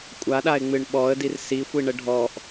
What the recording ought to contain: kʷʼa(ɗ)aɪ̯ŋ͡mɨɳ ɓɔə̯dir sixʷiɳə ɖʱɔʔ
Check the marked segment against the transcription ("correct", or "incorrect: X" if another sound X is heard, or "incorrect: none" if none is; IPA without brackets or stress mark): correct